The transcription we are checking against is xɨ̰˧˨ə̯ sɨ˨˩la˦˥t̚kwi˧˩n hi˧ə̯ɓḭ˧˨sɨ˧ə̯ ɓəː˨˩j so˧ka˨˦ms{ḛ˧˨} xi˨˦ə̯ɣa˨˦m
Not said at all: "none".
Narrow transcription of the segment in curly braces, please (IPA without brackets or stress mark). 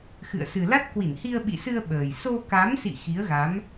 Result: ḭ˧˨